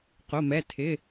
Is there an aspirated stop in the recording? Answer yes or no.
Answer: yes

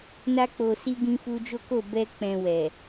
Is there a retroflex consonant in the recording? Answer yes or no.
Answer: no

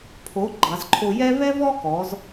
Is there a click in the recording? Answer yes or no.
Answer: yes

